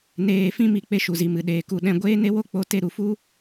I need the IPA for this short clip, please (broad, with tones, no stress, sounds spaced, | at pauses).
n eː˨ f ĩ˧ m i˨ k͡p e˧ ʃ u˨ z i˨ m ɨ˨ ɗ eː˨ k u˨ ɗ ɛ̃˧ ɡʷ eː˦ n e˦ w o˦ k͡p o˦ t e˦ ɾ u˨ f u˦